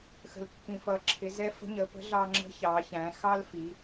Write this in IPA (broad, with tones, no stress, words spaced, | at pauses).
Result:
xə̤˩lkːĩ˩fʌ˩˧ǁʰɪ˩˧ zɛ˧˥fə̤˧˥ɲə˩˧pə̤˧˥ ɮɑ˧ŋ͡ǁə̤˧˥ çɑ˩˧çæ̃˩˧ xɑ˥lfi˩˧